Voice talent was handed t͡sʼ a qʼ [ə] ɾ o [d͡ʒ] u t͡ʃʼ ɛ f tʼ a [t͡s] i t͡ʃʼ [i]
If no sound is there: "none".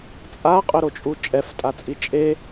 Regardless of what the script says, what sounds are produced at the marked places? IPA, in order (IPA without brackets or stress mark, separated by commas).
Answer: ɵ, t͡ʃʼ, t͡sʼ, e